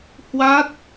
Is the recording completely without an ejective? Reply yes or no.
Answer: yes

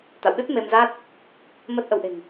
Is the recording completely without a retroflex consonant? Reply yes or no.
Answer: yes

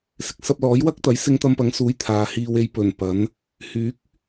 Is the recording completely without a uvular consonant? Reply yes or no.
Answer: yes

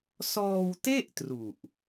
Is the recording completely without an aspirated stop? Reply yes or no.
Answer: yes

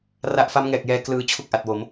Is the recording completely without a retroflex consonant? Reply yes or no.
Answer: yes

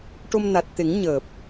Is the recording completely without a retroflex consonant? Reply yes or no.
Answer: no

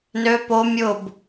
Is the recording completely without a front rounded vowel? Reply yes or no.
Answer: no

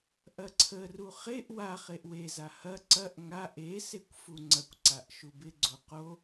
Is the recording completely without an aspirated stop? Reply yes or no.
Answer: no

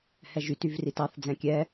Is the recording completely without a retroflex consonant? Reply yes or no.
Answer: yes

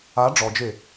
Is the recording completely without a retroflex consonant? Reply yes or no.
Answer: no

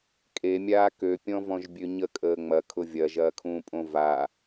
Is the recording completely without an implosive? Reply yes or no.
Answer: yes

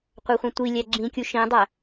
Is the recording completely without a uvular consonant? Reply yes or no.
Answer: no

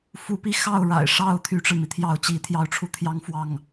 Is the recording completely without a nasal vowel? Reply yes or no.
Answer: yes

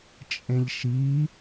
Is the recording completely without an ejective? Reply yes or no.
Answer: no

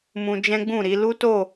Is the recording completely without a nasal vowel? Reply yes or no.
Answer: no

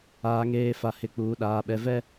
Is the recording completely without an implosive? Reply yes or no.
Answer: no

